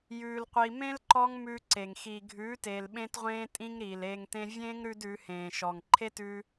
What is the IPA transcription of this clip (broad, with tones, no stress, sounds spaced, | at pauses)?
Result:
j ʉː˧ l qʷ i˧ m ẽ˦ l ǃ ɔ˦ ŋ m ʉː˧ ǀ e˨ ŋ x iː˨ ɡʱ ʉː˨˦ t eː˨ l ɓ ẽ˦ t ʁʷ ẽː˦ tʼ ĩ˦ ŋ ɾ iː˨ l eː˧ ŋ t ẽ˦ vʲ ẽː˦ ŋ ɾ ʉ˧ d ʉ˨˦ h ẽː˨ ʃ ɔ˨ ŋ ǃʰ e˦ t ʉ˧